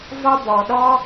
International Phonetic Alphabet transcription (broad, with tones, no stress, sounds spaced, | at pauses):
v ɒ˧ b ɔ˩ ɗ ɔ˧